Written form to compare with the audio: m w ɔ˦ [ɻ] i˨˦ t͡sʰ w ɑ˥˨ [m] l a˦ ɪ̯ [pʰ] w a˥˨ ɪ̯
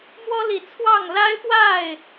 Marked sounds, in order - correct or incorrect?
incorrect, incorrect, incorrect

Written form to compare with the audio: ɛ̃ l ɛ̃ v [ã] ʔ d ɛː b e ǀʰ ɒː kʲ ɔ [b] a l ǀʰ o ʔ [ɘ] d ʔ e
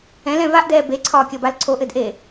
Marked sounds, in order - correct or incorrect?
incorrect, correct, correct

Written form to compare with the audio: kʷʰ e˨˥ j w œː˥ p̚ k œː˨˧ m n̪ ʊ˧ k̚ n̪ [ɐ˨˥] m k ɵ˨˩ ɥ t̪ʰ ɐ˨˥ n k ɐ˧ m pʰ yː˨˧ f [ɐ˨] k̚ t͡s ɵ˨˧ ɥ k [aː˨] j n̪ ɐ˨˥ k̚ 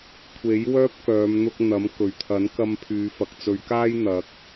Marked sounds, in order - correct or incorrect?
correct, correct, incorrect

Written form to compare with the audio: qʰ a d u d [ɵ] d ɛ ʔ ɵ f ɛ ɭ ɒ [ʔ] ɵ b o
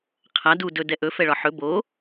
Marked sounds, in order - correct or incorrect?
correct, incorrect

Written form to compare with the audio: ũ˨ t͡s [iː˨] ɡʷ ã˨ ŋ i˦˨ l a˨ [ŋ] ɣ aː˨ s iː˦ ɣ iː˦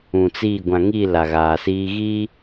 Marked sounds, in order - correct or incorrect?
incorrect, incorrect

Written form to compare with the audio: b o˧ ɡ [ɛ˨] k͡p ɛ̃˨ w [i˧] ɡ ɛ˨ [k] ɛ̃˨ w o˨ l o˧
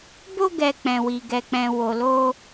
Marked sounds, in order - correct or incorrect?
correct, incorrect, incorrect

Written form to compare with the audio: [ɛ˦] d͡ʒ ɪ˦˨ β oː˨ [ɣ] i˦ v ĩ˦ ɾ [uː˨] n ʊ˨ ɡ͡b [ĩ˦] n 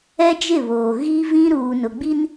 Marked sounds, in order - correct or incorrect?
correct, correct, correct, incorrect

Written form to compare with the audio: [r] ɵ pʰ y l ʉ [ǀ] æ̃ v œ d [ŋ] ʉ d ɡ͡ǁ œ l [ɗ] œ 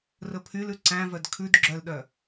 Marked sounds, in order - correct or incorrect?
correct, correct, incorrect, correct

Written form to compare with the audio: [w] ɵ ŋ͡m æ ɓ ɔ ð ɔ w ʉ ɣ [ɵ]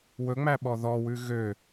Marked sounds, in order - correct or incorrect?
correct, incorrect

